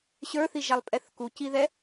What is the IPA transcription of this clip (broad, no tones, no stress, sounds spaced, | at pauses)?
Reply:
ɕ ə˞ θ i ʒ a lˠ pʼ ɛ θ k u c i ð ɛ